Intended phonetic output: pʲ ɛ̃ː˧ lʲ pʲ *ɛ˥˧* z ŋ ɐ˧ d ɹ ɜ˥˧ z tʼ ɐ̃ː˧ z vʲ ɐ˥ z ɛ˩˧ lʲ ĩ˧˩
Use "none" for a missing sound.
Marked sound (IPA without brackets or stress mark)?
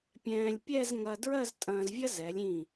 ɛ˥˧